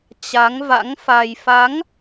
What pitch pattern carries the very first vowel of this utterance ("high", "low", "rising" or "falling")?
rising